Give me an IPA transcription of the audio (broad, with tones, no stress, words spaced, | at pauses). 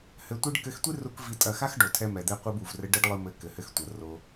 hɘ˧tʷi˦ɖ kɘ˧xtʷi˦ru˧k vi˧tʼɐ˦˨ xa˦xɖo˨tʰɛ˧mɛ˨ d̪ɛ˧qʷɨ˧bu˨v rɘ˦ ɖɘ˦ɖlˠɨ˧mɘ˨˦ kɘ˨hɘ˧xtʷɐ˨ ro˧